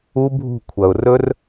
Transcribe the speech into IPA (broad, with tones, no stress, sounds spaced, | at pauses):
u˦˥ bʱ ṳ˦˨ kʷʰ ɐ˩ ʊ̯ r ɵ˦˥ r